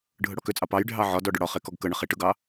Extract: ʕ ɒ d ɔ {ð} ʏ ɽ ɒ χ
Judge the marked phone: incorrect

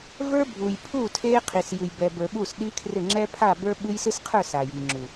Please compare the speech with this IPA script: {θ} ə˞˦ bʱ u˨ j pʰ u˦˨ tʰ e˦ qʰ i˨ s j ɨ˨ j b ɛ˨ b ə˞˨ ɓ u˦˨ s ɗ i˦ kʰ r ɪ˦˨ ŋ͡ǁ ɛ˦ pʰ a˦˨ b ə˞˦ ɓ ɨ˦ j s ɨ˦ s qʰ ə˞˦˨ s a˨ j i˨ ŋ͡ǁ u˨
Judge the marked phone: incorrect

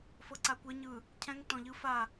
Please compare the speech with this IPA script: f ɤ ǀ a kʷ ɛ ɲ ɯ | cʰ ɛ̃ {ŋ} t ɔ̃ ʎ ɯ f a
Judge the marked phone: correct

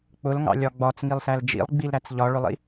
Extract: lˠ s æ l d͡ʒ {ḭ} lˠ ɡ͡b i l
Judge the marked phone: correct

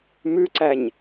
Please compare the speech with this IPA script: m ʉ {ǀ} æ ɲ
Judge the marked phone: correct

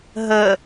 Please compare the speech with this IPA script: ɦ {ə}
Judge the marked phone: correct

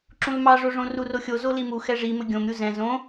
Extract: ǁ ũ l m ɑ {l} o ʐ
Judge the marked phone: incorrect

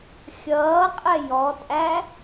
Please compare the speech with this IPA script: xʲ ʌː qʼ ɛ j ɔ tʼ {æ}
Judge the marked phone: correct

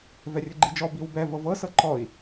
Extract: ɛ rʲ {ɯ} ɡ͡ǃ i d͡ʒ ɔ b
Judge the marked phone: correct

